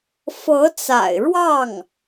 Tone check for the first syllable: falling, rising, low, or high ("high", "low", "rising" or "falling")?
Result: rising